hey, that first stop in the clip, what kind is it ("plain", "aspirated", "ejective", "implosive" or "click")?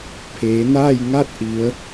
aspirated